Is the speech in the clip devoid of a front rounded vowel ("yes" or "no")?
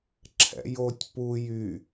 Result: no